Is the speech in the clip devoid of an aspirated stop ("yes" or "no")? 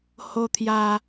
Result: no